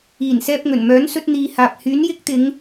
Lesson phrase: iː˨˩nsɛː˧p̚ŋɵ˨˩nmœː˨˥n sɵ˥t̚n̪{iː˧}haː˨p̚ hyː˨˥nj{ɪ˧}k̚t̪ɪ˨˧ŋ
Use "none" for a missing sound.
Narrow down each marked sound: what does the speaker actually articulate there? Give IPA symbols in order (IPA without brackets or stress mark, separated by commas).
iː˧, ɪ˥